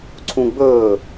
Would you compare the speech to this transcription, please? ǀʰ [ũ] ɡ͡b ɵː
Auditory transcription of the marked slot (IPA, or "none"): ũ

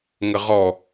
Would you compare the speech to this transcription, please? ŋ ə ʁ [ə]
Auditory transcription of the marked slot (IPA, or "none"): ɔ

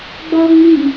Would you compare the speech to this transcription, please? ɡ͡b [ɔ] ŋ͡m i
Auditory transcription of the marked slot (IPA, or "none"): ɔ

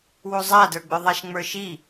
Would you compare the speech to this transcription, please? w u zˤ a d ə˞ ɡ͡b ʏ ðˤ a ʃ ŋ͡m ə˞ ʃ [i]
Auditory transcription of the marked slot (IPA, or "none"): i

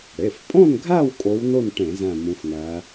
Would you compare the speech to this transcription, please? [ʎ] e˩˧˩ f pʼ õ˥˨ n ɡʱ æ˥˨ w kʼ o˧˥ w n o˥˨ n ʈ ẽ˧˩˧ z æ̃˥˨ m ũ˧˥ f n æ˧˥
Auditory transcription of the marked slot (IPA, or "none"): ɽ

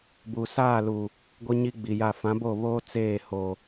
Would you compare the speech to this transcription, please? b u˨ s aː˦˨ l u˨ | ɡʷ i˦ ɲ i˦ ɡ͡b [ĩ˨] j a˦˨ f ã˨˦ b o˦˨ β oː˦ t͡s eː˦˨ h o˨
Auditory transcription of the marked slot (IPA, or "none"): i˨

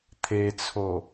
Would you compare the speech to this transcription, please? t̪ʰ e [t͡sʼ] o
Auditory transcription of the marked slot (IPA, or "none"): t͡sʰ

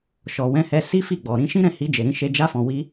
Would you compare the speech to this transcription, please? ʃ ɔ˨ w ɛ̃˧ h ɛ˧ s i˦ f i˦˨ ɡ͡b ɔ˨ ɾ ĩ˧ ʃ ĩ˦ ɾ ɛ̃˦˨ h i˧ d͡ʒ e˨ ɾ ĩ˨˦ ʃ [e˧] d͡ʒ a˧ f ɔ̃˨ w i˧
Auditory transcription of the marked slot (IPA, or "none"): e˧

